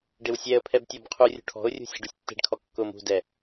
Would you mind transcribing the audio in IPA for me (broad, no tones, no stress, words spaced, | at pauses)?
ɖɪwsʲɛə̯pʰɛb tʲɔbqʰurʲṳ ʈʰɔ̤ʊ̯rʲṳ sʲe̤ɖusʲtːe̤ɖkʰɔ kːʊm ṳdɛ